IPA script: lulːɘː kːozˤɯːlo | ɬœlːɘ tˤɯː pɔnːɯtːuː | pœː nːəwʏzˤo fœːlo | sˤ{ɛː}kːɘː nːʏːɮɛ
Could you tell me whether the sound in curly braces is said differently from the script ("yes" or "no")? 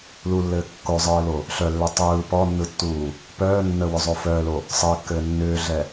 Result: yes